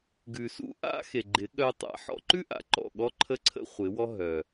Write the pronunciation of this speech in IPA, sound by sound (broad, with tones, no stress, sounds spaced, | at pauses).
ɡ ʉ˨ s ṵ˦ ʔ a̰˦ x e˨ ɡ͡ǃ ɪ˨˦ ɠ œ˧ tˤ a̰˧ ħ ɔ̰˧ ǃ ʉ˦ ʔ a̰˨ ǃ ɔ̰˦˨ ɠ ɔ˦ ǃʰ ə˦ ǀʰ ə̰˦ χʷ ɪ˨˦ w ɔ˦ ɦ œ˨